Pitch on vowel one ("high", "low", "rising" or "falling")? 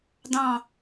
falling